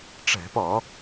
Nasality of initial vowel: oral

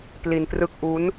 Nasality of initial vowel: oral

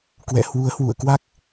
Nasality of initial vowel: oral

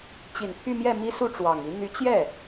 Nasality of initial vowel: oral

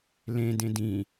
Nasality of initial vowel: nasal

